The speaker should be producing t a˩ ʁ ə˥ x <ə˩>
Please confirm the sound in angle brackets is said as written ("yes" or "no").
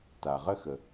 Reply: yes